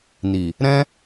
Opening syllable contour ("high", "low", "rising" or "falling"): low